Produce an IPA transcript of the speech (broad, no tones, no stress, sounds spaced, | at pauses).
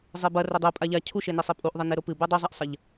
zˤ e b ɐ r ɵ dˤ u pʼ a ʎ a cʰ u ʃ e n e sˤ i pʼ u ʔ ðˤ ɐ n e ɾ o p ɨ b u dˤ u zˤ a ʔ sˤ ɐ ʎ